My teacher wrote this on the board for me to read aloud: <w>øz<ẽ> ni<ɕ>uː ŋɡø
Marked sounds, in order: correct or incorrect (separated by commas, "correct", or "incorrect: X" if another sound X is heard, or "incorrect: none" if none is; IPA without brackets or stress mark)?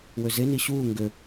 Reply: correct, incorrect: e, correct